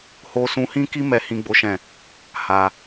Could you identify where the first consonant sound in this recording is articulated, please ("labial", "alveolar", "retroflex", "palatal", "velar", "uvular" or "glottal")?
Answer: glottal